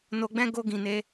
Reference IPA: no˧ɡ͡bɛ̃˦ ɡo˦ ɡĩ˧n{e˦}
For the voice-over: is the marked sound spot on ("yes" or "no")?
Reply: yes